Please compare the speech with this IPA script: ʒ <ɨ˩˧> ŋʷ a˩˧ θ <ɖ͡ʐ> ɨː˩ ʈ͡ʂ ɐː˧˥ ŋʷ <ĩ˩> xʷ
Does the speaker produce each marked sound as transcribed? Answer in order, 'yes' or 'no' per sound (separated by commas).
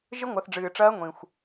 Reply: no, yes, yes